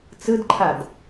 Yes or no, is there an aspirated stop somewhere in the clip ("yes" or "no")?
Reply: yes